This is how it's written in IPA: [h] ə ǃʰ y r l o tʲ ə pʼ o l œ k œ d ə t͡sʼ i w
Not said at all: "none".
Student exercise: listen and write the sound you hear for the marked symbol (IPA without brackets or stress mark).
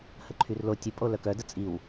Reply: h